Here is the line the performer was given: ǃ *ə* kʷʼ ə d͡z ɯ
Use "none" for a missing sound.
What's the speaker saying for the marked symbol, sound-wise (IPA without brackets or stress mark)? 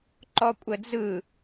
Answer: ɔ